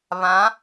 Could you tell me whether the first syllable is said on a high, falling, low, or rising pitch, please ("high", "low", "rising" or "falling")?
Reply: rising